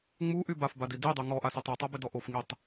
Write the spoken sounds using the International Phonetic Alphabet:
ŋ͡m u ʔ y b a f b a d i d i dˤ y ŋ ɔ ʔ a s y tˤ u tˤ a b ɪ d ɔ ʔ o f ŋ i tˤ

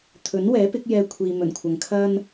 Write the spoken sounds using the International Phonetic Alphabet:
t̪ʰ ɵ˨˥ n w ɛː˨˥ p ɪ˨˥ k̚ j ɛː˥ kʷʰ iː˧ m ɵ˨˩ n kʷʰ ɐ˨ ŋ kʰ ɐ˥ n

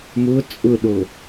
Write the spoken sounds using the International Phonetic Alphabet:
m ʊ t͡sʼ ʊ ɗ o

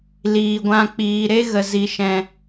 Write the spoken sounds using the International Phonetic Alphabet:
l iː˨ ɡʷ ã˧ k͡p iː˨ ɾ e˦ ɣ ə˨ z i˨ ʃ ɛ̃˨

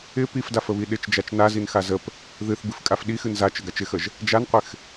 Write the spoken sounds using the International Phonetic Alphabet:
ɪ p i f d a f ə β i ɗ ɪ t͡ʃ d͡ʒ a t͡ʃ n a z i n x a z ə p | ð ɨ θ b ɨ f kʼ a f ɗ i x ɨ n z a t͡ʃ ə ɡ a t͡ʃ ɪ x ə ʒ | d͡ʒ a n qʷ ɪ x

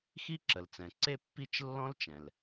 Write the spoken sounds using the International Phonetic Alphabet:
x i˥ ǁ ə˩ l t͡s ɛ̃˩ ǀ e˥ pː i˥ t͡ʃ lː ɔ̃˥ l t͡ʃ ɛ̃˩ l

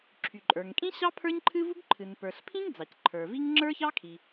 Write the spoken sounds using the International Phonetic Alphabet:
ǁʰ y˩ ǃʼ ə˞˩ ŋ kʼ ĩ˥ ɕ ɑ˥ pʰ ə˞˥ ɲ ǃʰ ɨ˥ v u˥ ɡ ǃʰ ɨ˩ n p ə˞˩ ɬ pʰ ĩ˥ ŋ d͡z ɑ˩ c ǃʰ ə˞˩ v i˥ ŋ ŋ͡ǁ ə˞˥ ç ɑ˥ kʰ i˩

